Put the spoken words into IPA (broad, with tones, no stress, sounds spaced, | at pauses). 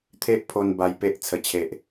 t̪ʰ e˦ ʔ pʰ o˧ n b a˧ j p e˦ ʔ t͡sʰ ə˨˩ t͡ɕʰ e˨ ʔ